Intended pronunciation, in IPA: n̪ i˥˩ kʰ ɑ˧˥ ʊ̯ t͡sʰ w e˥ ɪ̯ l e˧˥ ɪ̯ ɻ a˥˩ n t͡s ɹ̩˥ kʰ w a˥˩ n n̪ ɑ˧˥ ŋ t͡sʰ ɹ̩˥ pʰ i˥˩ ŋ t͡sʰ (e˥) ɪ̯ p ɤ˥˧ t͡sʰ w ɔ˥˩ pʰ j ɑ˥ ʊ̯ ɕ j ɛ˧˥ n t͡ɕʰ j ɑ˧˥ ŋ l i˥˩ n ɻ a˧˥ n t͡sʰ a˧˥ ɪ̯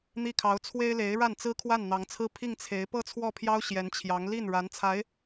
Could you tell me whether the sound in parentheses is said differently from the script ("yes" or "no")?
yes